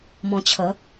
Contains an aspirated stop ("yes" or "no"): yes